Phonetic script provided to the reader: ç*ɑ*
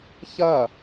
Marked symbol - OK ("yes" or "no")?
no